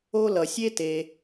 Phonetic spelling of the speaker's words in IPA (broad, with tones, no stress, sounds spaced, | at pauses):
o˦ l ʌ˩ sʲ e˥ t e˩